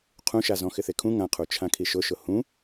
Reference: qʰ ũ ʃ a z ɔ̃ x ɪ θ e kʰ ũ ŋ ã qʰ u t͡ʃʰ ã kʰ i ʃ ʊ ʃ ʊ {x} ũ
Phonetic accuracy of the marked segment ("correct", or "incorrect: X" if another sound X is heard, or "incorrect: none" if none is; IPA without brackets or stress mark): incorrect: h